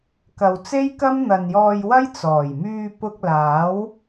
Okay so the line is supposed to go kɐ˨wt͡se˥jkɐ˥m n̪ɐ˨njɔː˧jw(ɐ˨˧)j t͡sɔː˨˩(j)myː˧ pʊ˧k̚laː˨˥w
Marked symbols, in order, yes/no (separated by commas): no, yes